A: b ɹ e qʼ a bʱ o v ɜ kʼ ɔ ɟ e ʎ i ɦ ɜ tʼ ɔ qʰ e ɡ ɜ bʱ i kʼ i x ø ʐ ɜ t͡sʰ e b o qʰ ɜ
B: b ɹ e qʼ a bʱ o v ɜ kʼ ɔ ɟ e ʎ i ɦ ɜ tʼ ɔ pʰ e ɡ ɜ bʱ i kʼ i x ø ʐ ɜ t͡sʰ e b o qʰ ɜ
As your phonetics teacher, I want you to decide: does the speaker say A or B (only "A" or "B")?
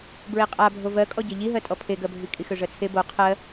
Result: B